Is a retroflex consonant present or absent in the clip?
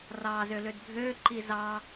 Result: absent